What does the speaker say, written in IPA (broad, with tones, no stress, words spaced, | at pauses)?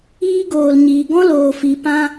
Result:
iː˦ɡoː˨l ɲiː˨ ɡɔ̃˦ loː˨ fi˨ pã˧